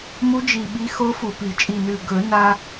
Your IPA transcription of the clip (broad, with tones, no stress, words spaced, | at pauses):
mu˧˥d͡ʒi˨˩ ɓi˧˥xo˧˥fu˨˩pi˨˩˦ t͡ʃʼi˨˩nʉ˨˩ ɡɵ˨˩˦na˧